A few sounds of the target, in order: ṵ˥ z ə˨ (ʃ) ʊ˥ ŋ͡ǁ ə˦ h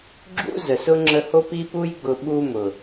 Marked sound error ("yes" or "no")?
yes